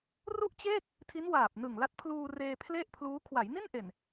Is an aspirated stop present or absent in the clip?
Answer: present